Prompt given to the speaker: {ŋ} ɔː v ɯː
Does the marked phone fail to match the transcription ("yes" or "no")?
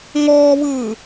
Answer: no